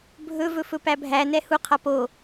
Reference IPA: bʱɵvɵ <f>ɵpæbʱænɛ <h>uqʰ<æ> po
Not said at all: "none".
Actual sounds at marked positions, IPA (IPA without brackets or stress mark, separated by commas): f, h, a